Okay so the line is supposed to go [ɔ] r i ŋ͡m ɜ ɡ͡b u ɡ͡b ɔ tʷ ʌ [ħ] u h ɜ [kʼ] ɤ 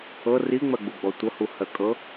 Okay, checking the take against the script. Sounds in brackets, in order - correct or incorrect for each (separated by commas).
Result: incorrect, incorrect, correct